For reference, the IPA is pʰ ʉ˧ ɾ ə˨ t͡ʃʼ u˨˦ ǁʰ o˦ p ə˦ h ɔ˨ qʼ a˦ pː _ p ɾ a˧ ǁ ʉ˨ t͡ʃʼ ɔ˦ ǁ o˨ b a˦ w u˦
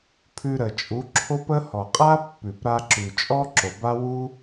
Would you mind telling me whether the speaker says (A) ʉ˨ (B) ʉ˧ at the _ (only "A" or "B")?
A